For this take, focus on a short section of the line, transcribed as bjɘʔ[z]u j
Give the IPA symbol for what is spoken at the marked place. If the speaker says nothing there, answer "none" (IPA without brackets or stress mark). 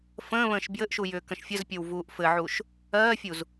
ʃ